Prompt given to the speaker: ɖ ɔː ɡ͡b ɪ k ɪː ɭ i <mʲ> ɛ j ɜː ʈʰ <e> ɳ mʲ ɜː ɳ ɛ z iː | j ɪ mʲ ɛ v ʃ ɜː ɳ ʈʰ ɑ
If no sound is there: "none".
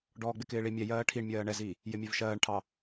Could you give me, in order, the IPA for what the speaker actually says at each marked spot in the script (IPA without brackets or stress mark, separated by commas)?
mʲ, i